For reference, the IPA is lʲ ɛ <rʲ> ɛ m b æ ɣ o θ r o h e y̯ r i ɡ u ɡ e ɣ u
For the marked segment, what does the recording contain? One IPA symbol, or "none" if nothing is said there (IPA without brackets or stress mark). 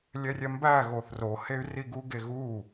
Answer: rʲ